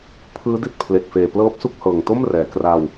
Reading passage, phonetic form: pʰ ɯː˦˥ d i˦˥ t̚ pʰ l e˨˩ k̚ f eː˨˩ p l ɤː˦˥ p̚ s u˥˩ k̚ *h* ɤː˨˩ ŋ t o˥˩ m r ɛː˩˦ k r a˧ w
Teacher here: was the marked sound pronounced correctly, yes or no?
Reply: yes